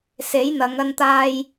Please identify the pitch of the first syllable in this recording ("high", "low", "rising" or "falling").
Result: rising